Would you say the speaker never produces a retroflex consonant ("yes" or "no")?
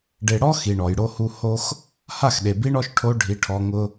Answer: no